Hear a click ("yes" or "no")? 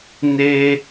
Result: no